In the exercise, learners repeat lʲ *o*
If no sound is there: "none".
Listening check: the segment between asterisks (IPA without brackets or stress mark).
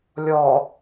ɔ